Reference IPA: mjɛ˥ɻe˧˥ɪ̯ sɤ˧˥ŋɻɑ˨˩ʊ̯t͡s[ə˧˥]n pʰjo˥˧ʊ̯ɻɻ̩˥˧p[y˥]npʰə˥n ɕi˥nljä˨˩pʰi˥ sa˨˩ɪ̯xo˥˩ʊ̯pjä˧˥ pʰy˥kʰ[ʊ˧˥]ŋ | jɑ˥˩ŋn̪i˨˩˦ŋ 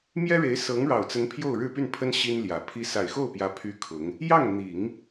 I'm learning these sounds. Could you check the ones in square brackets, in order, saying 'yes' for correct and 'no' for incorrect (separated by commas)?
yes, no, yes